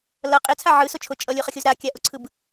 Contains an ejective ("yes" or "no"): yes